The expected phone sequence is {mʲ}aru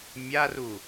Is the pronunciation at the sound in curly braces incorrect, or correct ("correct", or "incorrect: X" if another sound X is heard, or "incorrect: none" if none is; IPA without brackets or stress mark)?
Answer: correct